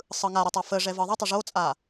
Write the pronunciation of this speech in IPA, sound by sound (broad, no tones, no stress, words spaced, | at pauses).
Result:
sˤɯŋaɾɯ tˤafəʐɛ vɯðˤətˤə ʐot͡sʼa